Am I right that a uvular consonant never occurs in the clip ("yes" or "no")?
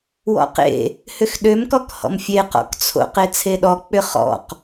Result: no